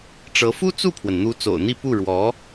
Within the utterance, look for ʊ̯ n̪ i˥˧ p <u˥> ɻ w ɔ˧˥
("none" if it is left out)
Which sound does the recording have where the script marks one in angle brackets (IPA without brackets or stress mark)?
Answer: u˥˩